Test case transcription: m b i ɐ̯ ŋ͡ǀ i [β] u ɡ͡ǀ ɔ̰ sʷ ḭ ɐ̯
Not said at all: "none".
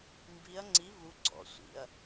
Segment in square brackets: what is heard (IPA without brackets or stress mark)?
β